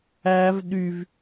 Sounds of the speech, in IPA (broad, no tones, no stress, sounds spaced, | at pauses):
æ v ɗ y v